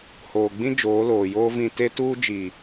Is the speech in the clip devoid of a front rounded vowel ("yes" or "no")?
yes